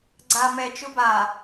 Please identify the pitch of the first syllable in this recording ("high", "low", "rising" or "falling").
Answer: low